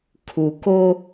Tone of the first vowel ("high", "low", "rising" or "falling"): low